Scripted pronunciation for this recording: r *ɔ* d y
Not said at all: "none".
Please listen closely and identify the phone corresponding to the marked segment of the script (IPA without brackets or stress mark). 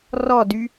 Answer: ɔ